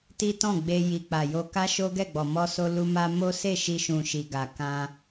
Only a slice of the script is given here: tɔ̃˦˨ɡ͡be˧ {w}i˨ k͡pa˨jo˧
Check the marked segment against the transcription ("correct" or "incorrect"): incorrect